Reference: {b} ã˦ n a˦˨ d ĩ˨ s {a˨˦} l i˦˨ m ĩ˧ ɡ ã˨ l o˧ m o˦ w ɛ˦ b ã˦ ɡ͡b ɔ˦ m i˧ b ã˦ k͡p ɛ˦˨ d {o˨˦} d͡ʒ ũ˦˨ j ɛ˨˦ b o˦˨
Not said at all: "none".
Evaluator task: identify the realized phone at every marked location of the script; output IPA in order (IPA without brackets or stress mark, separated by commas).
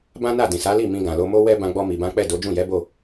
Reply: b, a˨˦, o˨˦